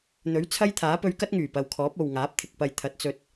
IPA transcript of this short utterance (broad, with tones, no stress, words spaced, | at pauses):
n̪ɵ˨˥ɥt͡sʰɐ˥jt̪ʰaː˨˥ pɵ˧ɥkɐ˥t̚ŋyː˨˩ pɐ˨wkʰɔː˨˥p̚ o˨wŋaː˨˥p̚ t̪ʰɪ˨k̚pɐ˨jt̪ʰɐ˨˥t̚ t͡sɵ˧t̚